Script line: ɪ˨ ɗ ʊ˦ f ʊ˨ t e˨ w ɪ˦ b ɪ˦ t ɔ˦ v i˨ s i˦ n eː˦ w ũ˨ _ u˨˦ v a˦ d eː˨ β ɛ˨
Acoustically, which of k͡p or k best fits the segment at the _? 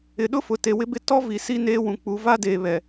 k͡p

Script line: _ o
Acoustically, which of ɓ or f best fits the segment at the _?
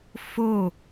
f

